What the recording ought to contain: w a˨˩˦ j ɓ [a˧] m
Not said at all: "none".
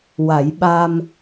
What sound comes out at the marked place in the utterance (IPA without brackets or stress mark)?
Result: a˧